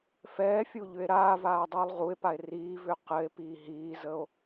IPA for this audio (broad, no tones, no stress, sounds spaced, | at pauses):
f ɛː fʲ u ʎ ʏ e̯ ɾ aː v aː dˤ uː lˠ ʁ u e̯ p a e̯ r iː v ʏː q ɘ e̯ p iː ɦ iː z ə o̯